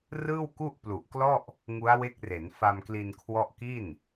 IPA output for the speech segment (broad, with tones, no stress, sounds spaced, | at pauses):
r ɯː˥˩ w k u˥˩ ʔ p l u˨˩ ʔ k l ɔ˥˩ ʔ | ŋ u˦˥ a̯ w e˦˥ k̚ r e˩˦ n f a˧ m k l i˧ n kʰ w ɔ˦˥ ʔ k i˥˩ n